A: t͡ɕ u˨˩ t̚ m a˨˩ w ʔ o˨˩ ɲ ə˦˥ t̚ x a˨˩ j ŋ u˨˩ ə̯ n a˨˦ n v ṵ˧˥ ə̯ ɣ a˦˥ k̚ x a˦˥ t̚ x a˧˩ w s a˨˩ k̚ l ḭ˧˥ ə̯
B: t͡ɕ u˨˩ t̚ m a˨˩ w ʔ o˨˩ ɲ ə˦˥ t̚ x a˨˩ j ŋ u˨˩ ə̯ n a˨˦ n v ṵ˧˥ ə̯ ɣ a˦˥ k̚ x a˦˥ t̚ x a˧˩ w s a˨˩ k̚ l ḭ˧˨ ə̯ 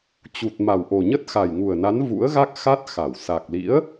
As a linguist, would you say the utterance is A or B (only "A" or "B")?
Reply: A